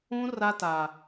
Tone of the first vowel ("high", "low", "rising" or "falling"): high